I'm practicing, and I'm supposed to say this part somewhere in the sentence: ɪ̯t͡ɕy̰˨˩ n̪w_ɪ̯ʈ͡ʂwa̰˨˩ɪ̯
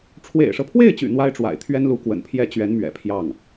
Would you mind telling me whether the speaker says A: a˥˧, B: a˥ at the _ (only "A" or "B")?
B